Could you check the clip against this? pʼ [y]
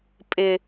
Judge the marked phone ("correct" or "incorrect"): incorrect